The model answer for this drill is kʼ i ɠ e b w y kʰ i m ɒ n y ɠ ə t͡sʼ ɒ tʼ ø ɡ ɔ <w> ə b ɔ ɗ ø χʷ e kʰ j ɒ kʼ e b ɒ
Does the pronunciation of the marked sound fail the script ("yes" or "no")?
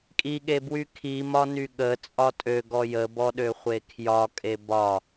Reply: yes